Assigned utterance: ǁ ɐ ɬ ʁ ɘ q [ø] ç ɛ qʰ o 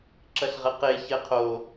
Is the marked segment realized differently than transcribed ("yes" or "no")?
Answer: yes